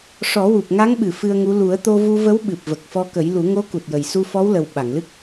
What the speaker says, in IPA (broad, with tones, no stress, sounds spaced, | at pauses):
ʂ ɔ˨˩˦ w u˨˩ p̚ ŋ a˧˥ ŋ ɓ ɨ˨˩˨ f ɨ˧ ə̯ ŋ u˧˥ l u˨˩˦ ə̯ t̪ o˧ v u˧ v ə˧˥ w ɓ ɨ˨˩ p̚ v ə˨˩ k̚ f ɔ˧ k ə˨˩˦ j l u˨˩˦ ŋ o˧˥ k u˨˩ t̚ j ə˨˩ j s u˧ f ɔ˧˥ w l ə˨˩ w ɓ a˨˩˨ ŋ l ɨ˦˥ k̚